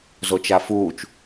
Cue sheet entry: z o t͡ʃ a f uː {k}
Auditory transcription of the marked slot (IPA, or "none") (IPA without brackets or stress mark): t͡ʃ